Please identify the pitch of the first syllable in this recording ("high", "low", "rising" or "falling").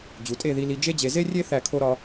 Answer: low